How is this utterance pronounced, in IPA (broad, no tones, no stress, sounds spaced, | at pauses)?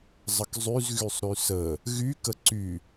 zˤ ə k zˤ y z ɣ y sˤ ɾ y s ə | ɣ y k ə ǀ y